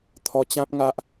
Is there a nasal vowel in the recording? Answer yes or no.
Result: yes